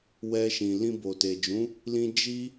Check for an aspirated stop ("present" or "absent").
absent